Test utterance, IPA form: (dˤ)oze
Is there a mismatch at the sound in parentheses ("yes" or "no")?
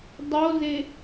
no